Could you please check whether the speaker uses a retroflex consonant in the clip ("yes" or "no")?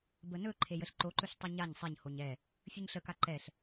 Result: no